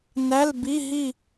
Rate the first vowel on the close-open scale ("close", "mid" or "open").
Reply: open